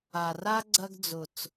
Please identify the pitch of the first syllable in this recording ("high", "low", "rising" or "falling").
low